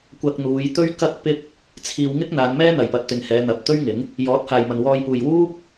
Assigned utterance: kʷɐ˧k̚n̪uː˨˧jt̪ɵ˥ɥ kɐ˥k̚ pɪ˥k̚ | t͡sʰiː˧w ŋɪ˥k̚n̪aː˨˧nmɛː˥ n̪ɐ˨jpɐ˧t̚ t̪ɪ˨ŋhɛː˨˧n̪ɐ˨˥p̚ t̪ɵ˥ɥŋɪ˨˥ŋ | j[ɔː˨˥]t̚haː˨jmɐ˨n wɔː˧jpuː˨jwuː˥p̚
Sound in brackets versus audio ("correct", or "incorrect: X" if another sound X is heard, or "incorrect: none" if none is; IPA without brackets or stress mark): correct